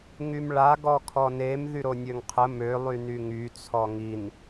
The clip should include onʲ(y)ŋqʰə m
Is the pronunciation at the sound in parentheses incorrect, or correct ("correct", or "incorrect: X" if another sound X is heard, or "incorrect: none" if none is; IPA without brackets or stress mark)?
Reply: incorrect: ø